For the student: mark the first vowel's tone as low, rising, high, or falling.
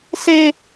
high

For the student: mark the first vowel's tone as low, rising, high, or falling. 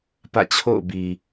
falling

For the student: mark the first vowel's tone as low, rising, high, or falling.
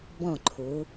falling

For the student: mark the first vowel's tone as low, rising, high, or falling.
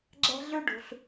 high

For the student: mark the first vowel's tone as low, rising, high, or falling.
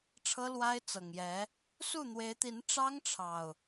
high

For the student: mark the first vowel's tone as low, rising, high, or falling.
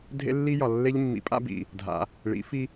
high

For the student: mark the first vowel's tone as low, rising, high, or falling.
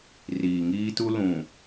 low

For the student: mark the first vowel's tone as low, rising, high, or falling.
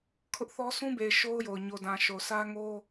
high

